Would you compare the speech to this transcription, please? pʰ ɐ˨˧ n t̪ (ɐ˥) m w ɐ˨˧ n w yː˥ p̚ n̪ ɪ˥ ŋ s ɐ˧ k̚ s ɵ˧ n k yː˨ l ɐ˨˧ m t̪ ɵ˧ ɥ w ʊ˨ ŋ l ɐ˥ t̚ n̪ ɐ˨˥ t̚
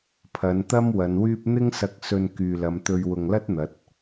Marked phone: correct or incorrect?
correct